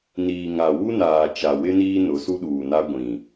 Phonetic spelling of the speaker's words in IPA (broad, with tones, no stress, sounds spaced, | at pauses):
n iː˨ ŋ a˨ w u˦ n aː˨ t͡ʃ a˨ w ɪ˦ n iː˦ n ʊ˨˦ s u˦ ɗ uː˨ n a˦ ɡʷ ĩ˨